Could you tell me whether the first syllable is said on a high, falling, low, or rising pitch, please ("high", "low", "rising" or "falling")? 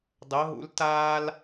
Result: rising